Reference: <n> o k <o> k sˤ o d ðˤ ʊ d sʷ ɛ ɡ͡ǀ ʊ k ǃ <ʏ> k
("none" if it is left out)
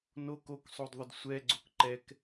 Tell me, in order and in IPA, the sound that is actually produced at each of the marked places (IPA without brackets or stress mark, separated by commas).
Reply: n, o, ɛ